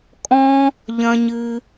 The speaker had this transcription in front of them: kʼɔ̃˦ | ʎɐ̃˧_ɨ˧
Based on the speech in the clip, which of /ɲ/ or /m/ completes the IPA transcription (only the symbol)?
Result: ɲ